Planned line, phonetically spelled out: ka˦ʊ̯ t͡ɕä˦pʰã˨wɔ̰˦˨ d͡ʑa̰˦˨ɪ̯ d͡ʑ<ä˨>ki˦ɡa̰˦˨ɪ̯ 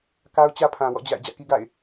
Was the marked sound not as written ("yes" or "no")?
yes